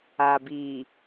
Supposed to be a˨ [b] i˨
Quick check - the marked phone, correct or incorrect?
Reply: correct